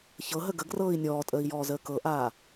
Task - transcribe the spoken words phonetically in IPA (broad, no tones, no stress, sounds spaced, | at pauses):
ç ɤ ɦ ə ɡ ə ɡ r ɤː i̯ nʲ ɔː tʼ əː i̯ j ɔː z əː k ɤ ʔ aː